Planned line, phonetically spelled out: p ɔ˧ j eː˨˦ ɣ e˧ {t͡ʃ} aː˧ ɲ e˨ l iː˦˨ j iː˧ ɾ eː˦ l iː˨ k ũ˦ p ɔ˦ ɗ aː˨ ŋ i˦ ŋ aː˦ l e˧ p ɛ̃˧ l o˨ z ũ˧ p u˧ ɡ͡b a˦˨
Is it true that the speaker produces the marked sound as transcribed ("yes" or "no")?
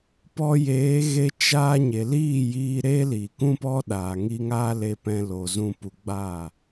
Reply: yes